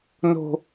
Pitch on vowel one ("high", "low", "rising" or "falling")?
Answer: low